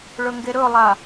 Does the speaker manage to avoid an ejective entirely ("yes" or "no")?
yes